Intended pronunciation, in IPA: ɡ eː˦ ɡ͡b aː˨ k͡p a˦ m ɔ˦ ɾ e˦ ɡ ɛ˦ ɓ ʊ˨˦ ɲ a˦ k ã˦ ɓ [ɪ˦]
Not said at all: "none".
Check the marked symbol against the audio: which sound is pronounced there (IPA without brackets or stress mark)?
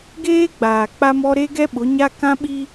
i˦